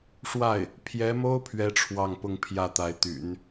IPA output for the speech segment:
ʂwa˥˩ɪ̯ | pʰjɛ˧˥mo˥ʊ̯ pʰɥɛ˥ʈ͡ʂʰwɑ˥˧ŋpʊ˥˧ŋ pʰjä˥˩t̪a˧˥ɪ̯t̪y̰˨˩˦n

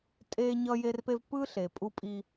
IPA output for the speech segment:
tʼe˦ɲʌ˦ je˦rpe˦v pɯ˦ɬe˨ pʼu˦pʼi˦

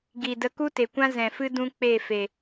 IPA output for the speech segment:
ɡi˨ də˧ku˦te˨kʷã˦ zɛ̃˨fɨ˦ dũ˦ k͡pe˦˨fe˨

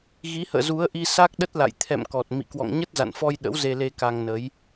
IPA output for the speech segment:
ɣi˨˦hə̰ː˧˨zu˨˦ə̯ʔi˧ sa˦˥k̚ɗə˦˥t̚la̰˧˨j t̪ʰɛ̰˧˨mkɔ˨˩t̚ mḭ˧˨ kwɔ̰˧˨ŋɲə˦˥t̚za̰˧˨nfɔ˧j ɗə̰˧˥wze˧le˧ ka˧ŋnə˨˦j

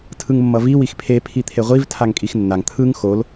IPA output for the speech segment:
tʰɯŋmːʌvi wixpʰe pʰit̪ʰeʁʷiv tʰaŋkʼixnːaŋ t̪ʰɯŋ xol

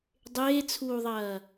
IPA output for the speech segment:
dˤeːt͡sʰuːðˤɐː

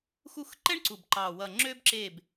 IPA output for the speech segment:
xu˦˨xǃɛ˥ɳǀu˨˩b ǃɑ˨˩wʌ˨˩ ŋ͡ǁø˥bǁe˦˨b

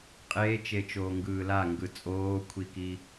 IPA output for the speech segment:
qʼeːt͡ʃet͡ʃoːŋɡɯː laŋɡɯ t͡sʼoːkʷʰikiː

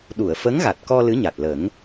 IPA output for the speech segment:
ɗu˨˩˨ə̯fə˧˥ŋɣa˨˩t̚kɔ˧ lɨ˧˥ɲa˨˩t̚lə˨˩˦ŋ

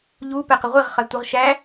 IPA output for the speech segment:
ʎu pɛqəʁʷiʁ χʌztʷəʁ ʃæ

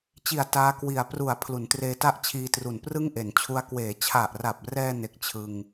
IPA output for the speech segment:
t͡ɕi˨˩a̯ taː˦˥kwi˨˩a̯ pru˩˦a̯ pʰlu˩˦ntreː˧ta˥˩ʔt͡ɕʰiː˧ tru˨˩nprɯ˥˩ŋʔe˩˦nt͡ɕʰu˦˥a̯ kweː˩˦t͡ɕʰa˨˩ʔra˨˩p̚rɛː˧ ne˦˥k̚t͡ɕʰɯ˧ŋ

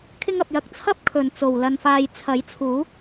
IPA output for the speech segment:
kʰɪ˧ŋɐ˨p̚jɐ˨k̚ t͡sʰɐ˥p̚ kʰɵ˨nt͡so˨w lɐ˧nfaː˧j t͡sʰɐ˨˥jt͡sʰuː˨˥

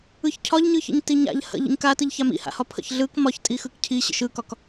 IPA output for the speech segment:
ɯçcʰɒʎɲɯçə̰ɲ tiɲa̰ʎ hə̰ ʎə̰ɲkatɯʎ çamḭha̰hɒ pʰə̰çɮɯk mɒç tʼixɯkcʰi ɕə̰ʃɯkɒk

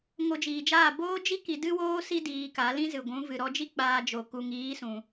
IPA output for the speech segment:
ŋo˧d͡ʒiː˨d͡ʒaː˦˨ boː˦d͡ʒi˦ ki˧dɨ˦woː˦si˦ diː˧ka˨˦ lĩ˦zɨ˨ɡʷũ˨˦ vɨ˨ɾɔ˧d͡ʒi˦ k͡paː˧d͡ʒo˨ ku˨ŋiː˨˦ sũ˧

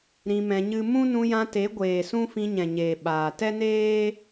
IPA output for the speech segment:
ɾĩ˧mɛ̃˧ɲɨ˦ mũ˦nũ˧jã˧ te˨˦ɡʷeː˨sũ˦ fĩ˧ɲɛ̃˨ɲeː˨ ɓaː˨ tɛ˦neː˦

